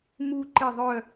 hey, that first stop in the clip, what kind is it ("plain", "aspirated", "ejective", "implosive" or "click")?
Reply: click